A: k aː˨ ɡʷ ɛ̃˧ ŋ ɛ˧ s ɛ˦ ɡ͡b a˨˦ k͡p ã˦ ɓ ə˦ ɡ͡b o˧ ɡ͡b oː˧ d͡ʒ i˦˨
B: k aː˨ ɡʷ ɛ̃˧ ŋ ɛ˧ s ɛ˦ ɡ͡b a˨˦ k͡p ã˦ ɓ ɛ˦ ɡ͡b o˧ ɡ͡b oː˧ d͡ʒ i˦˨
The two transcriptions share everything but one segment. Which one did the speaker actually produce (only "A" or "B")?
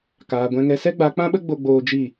A